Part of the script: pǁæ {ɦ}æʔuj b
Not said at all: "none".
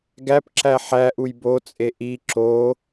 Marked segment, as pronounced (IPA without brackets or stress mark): ħ